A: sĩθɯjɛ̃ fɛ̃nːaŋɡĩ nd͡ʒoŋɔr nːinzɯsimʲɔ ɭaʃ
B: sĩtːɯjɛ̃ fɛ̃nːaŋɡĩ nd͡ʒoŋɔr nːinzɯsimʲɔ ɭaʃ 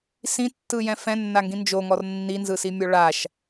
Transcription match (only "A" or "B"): B